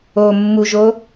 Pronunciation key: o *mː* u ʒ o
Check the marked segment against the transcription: correct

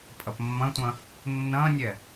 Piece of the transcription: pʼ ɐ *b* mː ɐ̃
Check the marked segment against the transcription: incorrect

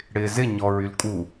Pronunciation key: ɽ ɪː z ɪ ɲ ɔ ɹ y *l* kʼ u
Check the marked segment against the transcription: correct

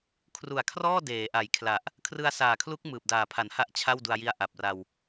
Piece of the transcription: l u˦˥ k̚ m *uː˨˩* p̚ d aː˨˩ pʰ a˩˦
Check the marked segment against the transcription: incorrect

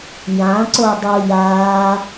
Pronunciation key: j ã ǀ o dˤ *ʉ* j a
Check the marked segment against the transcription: incorrect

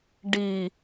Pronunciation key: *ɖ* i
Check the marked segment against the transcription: correct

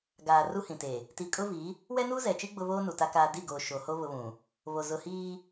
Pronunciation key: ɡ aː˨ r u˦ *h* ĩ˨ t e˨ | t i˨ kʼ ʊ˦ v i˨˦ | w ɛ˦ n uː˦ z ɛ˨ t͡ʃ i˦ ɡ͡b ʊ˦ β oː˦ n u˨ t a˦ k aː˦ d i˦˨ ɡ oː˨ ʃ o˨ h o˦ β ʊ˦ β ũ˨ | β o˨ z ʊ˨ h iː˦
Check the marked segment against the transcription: correct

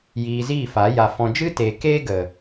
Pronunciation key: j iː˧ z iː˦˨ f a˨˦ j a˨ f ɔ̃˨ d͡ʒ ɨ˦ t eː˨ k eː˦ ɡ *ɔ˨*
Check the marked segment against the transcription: incorrect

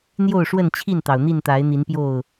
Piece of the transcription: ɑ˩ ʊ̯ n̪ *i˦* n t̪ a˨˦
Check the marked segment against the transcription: incorrect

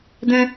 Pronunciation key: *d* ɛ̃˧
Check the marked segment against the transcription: correct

